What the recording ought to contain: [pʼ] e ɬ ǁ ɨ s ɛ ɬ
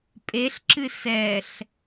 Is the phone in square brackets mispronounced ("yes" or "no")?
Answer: no